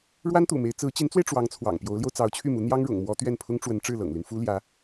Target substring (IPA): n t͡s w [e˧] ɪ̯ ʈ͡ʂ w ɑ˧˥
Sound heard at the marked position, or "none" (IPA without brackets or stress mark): e˧